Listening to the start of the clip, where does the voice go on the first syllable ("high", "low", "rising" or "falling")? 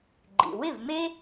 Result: low